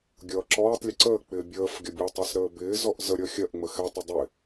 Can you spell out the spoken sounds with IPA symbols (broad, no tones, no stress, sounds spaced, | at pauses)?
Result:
ɡʲ ʌː ǁ ɔː tˤ lʲ ə ǀ əː k͡p ɪː bʲ əː f ɡʲ ʌ bʲ ɔ tˤ ɜ s ɾ əː b ɪː z ɔ ʔ z ə ɾʲ ʌ xʲ ɜ ʔ ŋ͡m ə x ɛ tˤ ɛ dˤ ɪ